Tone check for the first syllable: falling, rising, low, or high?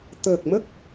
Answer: low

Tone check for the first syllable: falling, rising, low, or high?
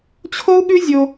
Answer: high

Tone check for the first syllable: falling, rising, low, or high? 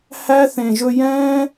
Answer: high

